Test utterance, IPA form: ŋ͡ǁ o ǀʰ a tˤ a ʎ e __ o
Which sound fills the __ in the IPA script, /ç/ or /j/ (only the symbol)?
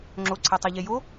j